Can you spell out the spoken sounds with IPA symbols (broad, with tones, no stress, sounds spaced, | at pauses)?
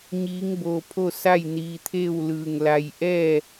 ɲ iː˧˥ ŋ b oː˧ pʰ o˥˨ s a˥˨ j n iː˧ t̪ʰ e˥˨ w l ɯː˧˩ ŋ l a˧ j ʔ ɛː˥˨